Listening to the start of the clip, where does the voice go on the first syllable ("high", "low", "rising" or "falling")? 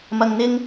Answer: low